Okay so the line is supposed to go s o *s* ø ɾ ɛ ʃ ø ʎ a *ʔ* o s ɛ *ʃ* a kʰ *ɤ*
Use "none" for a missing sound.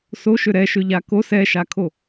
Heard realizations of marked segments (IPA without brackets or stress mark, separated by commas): ʃ, k, ʃ, o